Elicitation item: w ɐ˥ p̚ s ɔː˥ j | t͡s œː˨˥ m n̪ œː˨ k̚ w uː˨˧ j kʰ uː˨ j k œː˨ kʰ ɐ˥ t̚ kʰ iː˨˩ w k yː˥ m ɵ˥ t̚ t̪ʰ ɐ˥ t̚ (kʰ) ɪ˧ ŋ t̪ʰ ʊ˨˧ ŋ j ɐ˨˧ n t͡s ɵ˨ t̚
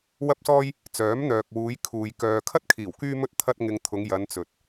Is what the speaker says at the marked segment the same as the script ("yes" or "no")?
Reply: no